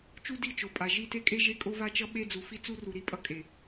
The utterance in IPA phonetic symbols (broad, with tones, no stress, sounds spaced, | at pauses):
t͡ʃ u˦ d i˦˨ t͡ʃ o˨ pʼ a˨ ʒ i˦˨ t e˦ kʼ e˦ ʒ e˦ kʼ o˦ v a˦ t͡ʃ ʌ˦ ɓ e˦ d͡z u˨ f i˦ t͡s u˦ r u˨ ɾ i˦ pʼ ʌ˦ kʼ e˨